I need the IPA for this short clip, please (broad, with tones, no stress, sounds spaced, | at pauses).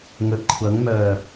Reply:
ŋ ɵ˨ t̚ kʷʰ ɐ˨˥ ŋ m œː˨˩